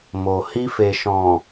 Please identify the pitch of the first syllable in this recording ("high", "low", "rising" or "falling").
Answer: low